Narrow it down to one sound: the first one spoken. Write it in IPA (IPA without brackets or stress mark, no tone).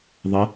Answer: ðˤ